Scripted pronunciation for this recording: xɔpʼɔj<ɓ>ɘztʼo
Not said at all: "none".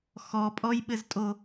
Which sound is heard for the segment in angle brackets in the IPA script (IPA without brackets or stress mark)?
ɓ